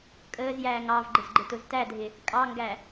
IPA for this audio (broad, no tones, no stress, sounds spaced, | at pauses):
kʼ əː z j æː ŋ ɑ v ɡ͡ǃ ɪ z ɡ͡ǃ ɪ t ʊ z t æ dʱ ɪ | kʼ ɑ ŋ ɡ æ